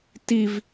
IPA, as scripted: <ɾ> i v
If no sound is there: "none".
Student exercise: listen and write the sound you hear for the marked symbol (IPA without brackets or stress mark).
t